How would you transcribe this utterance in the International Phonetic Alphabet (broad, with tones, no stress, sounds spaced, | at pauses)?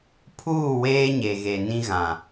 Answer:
pʰ uː˦˨ w eː˦ ɲ e˨ ɣ e˨ n ĩ˦ ɣ ã˨